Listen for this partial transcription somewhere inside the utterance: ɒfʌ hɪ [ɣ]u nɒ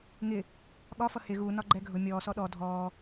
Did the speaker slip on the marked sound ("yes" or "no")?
no